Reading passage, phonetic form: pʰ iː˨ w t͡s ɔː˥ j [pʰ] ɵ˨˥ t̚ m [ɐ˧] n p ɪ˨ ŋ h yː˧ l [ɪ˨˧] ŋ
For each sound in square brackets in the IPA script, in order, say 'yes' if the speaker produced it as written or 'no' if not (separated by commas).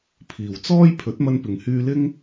yes, yes, no